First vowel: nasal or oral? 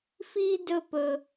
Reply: oral